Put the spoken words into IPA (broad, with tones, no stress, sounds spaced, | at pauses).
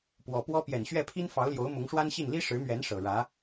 p w ɔ˨˩ p w ɔ˥ p j ɛ˨˩ n ɕ ɥ ɛ˥˩ pʰ i˥ n f ɑ˧˥ ʊ̯ l j o˧˥ ʊ̯ m ʊ˧˥ ŋ ʂ w a˥ n ɕ i˥˩ n l i˥ ʂ ɻ̩˧˥ m ɥ ɛ˧˥ n ʂ ɤ˨˩ ɻ ä˧˥